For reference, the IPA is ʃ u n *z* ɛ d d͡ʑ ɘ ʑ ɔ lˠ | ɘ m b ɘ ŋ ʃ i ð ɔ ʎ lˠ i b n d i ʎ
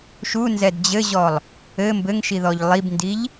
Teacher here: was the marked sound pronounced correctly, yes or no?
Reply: yes